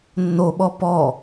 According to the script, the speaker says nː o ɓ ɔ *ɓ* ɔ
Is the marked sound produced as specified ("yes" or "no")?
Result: no